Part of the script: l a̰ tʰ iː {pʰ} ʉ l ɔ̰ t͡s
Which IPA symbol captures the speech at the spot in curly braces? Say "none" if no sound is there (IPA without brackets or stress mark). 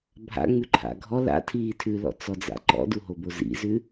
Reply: tʰ